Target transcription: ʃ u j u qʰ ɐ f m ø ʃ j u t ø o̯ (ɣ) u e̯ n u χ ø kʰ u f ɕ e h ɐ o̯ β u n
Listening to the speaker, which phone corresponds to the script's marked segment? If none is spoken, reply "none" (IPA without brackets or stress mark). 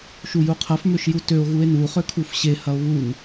ɣ